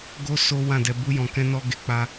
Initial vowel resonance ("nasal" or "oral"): oral